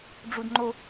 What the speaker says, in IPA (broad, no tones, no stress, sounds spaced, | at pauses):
ɖ͡ʐ u d ŋ͡ǃ o